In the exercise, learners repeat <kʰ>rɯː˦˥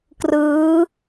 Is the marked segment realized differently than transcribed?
yes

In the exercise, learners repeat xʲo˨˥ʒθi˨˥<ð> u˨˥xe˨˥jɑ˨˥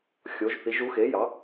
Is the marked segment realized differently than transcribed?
yes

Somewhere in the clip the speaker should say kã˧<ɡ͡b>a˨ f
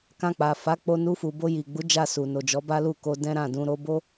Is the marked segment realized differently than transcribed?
yes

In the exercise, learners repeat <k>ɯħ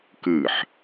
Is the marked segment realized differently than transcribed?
no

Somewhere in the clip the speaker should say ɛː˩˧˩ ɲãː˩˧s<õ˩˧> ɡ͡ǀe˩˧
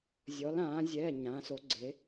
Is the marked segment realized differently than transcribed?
yes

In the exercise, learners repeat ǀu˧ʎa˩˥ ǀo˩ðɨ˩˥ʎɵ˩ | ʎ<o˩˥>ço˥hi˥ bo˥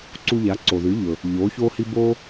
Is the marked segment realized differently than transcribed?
no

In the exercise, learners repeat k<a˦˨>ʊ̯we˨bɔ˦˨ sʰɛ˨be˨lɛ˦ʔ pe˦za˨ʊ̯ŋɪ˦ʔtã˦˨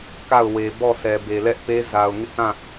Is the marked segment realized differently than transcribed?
no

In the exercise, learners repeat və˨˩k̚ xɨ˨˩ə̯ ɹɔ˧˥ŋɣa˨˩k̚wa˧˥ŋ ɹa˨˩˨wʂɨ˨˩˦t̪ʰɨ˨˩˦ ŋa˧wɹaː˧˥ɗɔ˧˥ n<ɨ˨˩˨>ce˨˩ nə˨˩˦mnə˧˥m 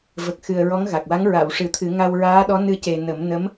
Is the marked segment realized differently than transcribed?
yes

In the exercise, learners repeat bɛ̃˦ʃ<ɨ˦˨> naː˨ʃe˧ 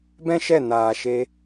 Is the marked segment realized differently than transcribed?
yes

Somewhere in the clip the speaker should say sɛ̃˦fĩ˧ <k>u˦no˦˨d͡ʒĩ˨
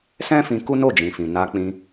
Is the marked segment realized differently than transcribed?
no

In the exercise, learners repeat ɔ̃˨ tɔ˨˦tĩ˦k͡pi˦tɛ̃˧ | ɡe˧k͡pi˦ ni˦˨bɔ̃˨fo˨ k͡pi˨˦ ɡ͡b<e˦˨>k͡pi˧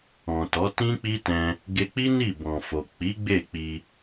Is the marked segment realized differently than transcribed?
no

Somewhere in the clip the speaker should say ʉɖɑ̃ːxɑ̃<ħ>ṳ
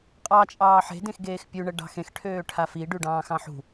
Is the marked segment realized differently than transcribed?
no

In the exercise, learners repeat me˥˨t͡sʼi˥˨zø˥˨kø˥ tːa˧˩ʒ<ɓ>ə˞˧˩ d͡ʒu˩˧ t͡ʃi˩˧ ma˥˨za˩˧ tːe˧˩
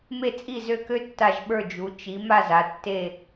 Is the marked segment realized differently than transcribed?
no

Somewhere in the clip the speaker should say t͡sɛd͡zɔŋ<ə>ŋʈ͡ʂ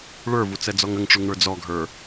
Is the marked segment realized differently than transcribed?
no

